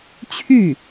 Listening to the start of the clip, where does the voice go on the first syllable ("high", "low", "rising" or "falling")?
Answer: falling